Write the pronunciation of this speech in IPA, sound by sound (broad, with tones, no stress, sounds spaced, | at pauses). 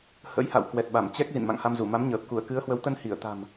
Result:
h ə̰˧˥ j h a̰˧˨ w k w ɛ˨˩ t̚ ɓ a˧˩ m t͡ɕ ɛ˦˥ k̚ z ḭ˧˨ n m a̰˧˨ ŋ h a˧ m z u˧˩ m a˨˦ m ɲ əː˨˩ p̚ k u˧˩ ə̯ k ɨ˨˦ ə̯ h w ə˨˦ w t̪ ə˧ n h i˧˩ ə̯ t̪ a̤˨˩ m